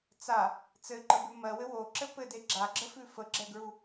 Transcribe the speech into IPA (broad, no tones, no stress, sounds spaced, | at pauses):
t͡s a | t͡s ɘ ǃ ə b ʉ m ɜ w ɘ w o ǁ ɘ p ɘ d e ɡ͡ǁ a ɡ͡ǁ ə f ʉ f ə ɡ͡ǁ ɛ ɡ ɹ u